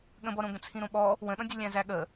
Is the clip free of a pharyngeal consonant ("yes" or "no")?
yes